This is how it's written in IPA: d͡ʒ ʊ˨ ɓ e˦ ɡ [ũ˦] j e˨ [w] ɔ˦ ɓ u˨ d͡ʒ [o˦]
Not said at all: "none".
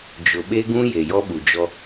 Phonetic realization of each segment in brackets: ũ˦, j, ɔ˦

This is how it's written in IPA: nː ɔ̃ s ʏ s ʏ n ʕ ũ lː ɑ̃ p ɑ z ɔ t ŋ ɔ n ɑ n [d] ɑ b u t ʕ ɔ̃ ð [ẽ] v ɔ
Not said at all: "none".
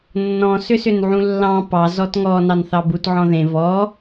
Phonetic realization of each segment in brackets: θ, ẽ

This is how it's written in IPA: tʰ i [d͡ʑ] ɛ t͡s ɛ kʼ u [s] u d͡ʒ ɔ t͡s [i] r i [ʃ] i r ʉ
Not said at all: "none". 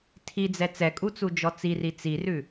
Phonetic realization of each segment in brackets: d͡z, t͡s, i, t͡s

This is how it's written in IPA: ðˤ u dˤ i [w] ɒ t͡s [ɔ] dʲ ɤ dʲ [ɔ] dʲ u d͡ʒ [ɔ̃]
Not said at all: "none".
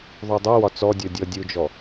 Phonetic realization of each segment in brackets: w, ɔ, ɔ, ɔ

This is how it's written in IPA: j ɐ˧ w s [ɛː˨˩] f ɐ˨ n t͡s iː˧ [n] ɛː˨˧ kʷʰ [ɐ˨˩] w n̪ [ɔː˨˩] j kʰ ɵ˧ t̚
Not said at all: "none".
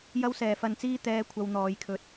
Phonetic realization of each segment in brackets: ɛː˨˩, t̪, ɐ˧, ɔː˨˧

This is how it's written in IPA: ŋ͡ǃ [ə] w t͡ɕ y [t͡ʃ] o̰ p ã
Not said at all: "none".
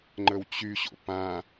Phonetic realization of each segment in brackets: ə, ɕ

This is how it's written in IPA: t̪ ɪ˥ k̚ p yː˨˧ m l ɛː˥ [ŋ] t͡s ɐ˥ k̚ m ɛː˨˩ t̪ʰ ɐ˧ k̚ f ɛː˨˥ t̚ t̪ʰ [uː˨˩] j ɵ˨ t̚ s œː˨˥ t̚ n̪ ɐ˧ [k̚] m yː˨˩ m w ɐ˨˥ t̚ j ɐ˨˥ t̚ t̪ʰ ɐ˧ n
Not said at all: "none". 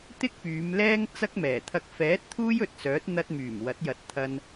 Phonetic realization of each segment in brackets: ŋ, uː˥, t̚

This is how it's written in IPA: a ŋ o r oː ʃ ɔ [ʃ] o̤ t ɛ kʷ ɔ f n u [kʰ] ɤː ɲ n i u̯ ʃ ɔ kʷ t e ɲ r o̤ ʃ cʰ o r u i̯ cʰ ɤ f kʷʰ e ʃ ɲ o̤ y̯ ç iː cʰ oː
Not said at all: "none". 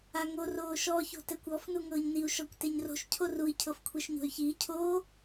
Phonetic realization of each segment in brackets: ç, ŋ

